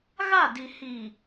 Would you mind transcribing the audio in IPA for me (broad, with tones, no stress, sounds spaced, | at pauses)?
ɣ a˦˨ d i˨ h i˨